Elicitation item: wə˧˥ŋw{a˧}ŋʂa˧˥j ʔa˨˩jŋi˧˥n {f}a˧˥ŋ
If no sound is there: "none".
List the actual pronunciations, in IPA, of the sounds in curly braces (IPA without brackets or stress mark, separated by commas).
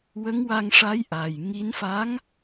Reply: a˧, f